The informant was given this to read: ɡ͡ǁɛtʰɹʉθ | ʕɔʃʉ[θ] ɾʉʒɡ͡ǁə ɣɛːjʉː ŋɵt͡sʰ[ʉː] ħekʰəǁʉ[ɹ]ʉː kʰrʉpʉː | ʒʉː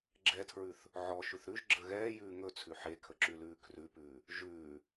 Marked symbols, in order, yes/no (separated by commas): yes, no, no